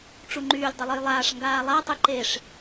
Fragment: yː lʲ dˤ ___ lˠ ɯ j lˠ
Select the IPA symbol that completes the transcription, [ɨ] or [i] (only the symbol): ɨ